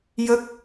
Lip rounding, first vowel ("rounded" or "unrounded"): unrounded